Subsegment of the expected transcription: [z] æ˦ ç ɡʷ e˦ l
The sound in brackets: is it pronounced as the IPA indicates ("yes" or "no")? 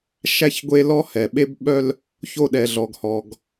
no